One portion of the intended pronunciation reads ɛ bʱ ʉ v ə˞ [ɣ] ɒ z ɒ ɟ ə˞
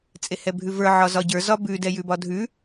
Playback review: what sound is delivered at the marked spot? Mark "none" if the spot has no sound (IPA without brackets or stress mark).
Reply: ʕ